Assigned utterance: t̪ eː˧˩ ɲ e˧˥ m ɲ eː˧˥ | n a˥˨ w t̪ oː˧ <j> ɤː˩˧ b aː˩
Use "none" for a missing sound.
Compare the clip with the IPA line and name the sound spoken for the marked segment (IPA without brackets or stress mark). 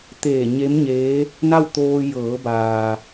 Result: j